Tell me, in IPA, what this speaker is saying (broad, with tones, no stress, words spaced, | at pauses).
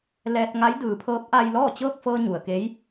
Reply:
lɛː˧t̚ŋa˧˥j dɯː˩˧pʰɤː˧˥p̚ ʔa˧jlɔː˥˨ t͡ɕɤː˥˨k̚fɤː˧ ɲu˩ə̯ke˧˥j